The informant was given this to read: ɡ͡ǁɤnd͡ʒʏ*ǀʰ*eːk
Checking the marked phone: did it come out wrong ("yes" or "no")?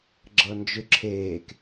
yes